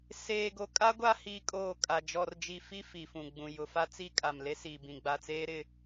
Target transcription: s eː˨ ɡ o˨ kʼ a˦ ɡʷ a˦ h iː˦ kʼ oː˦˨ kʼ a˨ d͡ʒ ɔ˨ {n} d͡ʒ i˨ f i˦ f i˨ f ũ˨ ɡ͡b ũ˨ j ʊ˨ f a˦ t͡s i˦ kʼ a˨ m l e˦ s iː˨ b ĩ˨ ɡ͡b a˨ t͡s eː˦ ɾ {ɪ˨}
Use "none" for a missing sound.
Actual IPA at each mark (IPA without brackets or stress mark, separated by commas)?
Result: r, ɪ˦